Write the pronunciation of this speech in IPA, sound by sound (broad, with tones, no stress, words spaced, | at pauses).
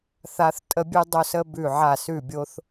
θa˧θ tʼə˧bʲʉ˧dˤo˧sə˧ bʉ˧˩ʕa˧˩ sʉ˧˩bʲo˧θ